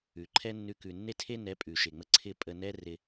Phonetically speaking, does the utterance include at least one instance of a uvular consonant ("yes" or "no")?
no